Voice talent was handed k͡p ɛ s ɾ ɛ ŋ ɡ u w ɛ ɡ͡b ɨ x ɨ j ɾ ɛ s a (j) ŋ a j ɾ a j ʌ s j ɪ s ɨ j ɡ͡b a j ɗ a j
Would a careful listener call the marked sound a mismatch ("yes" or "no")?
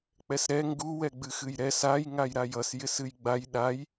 no